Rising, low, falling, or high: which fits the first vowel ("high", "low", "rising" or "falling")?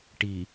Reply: low